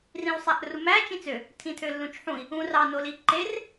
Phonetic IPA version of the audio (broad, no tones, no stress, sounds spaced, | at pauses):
r ĩ w sˤ æ ʔ r u m æ t͡ʃ ĩ t͡s ø | tʰ ĩ tʰ ø lː ũ t͡ʃ ħ ũ i̯ | ũ r ɑ n o l i ǃ e r